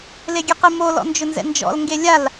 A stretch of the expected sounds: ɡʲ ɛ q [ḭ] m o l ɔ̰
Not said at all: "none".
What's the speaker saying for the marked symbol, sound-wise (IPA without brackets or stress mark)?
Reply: i